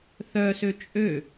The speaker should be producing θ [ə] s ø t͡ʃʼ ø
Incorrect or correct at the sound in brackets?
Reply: incorrect: œ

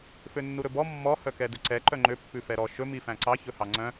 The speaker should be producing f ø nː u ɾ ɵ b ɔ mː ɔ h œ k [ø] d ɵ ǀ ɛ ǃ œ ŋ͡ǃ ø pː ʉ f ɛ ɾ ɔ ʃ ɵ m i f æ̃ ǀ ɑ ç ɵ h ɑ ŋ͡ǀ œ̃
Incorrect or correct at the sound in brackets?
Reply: incorrect: ɛ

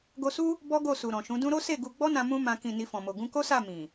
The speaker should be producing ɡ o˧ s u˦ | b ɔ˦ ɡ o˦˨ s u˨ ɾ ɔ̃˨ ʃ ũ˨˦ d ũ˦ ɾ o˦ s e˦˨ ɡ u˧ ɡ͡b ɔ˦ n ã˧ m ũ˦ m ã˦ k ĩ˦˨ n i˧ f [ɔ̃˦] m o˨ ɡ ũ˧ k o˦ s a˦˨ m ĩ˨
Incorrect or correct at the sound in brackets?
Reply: incorrect: ɔ̃˨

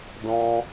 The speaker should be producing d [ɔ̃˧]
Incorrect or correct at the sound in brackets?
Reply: correct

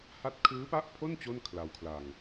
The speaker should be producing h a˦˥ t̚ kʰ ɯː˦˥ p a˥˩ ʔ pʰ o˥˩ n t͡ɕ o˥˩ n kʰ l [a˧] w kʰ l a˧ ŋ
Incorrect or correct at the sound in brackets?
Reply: correct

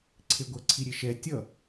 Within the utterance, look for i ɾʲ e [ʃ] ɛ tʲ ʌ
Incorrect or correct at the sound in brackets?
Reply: correct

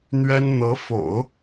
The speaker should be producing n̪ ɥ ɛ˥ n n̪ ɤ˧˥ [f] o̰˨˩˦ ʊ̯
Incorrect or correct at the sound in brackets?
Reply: correct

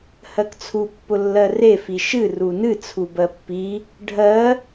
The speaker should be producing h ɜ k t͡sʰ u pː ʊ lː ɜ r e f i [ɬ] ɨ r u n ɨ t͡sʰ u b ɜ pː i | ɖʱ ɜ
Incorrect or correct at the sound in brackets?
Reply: incorrect: ʃ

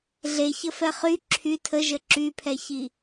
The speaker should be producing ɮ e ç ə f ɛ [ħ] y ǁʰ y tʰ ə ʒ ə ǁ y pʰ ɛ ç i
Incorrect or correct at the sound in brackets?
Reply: incorrect: χ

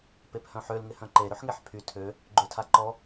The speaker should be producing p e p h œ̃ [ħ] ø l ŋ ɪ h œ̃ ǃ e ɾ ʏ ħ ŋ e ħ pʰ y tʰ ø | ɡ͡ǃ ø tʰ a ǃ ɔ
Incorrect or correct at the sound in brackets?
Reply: correct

